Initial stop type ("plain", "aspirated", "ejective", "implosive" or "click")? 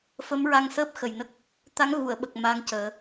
plain